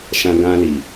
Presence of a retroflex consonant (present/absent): absent